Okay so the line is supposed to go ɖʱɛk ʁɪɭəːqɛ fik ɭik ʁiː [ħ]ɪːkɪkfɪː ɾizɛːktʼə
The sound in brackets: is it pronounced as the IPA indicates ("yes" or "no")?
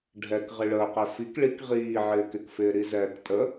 no